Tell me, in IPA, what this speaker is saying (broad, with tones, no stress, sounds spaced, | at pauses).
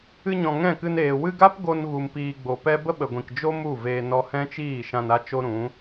ɨ˧ ɲ ɔ̃˨ ŋ ɛ̃˦˨ k ɨ˧ n eː˨ w ɨ˧ ɡ a˦ p ɡ o˧ n ɣ u˨ m p iː˨ ɡ͡b o˨ p ɛ˦ b ə˦ ɓ ə˨ ɡʷ ĩ˨ k d͡ʒ o˦ m u˦˨ v eː˧ n ɔ˧ h ɛ̃˦ t͡ʃ iː˦˨ ʃ ã˧ n a˦ t͡ʃ o˦ ɾ ũ˨˦